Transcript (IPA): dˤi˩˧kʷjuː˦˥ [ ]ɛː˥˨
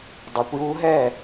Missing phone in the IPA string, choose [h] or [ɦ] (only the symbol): ɦ